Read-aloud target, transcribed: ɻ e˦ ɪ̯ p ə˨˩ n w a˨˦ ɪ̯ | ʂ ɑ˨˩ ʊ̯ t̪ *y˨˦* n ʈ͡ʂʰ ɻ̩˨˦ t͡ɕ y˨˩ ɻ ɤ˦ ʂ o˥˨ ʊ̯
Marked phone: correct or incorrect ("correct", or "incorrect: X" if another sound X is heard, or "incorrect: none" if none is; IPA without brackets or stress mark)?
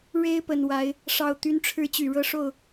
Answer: correct